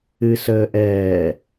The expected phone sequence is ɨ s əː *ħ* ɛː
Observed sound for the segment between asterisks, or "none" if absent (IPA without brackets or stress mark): ʔ